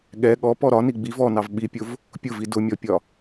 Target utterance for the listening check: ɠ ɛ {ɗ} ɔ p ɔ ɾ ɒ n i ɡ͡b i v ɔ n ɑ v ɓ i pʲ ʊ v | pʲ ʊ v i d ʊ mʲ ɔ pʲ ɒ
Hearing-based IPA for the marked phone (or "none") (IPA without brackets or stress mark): ɠ